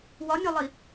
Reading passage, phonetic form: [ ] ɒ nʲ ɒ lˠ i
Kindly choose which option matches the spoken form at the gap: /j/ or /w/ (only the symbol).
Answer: w